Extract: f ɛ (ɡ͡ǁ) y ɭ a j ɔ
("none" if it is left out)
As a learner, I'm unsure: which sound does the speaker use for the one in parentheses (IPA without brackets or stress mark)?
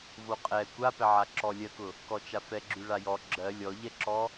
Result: ɡ͡ǁ